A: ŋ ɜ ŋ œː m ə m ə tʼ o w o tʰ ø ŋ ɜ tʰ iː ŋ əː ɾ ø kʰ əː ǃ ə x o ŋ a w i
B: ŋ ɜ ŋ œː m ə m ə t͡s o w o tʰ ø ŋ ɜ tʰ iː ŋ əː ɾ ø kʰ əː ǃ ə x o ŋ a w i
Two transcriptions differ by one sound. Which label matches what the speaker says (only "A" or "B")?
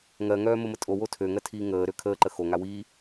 A